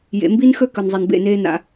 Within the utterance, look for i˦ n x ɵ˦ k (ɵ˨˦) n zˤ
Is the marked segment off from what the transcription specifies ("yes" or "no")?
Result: yes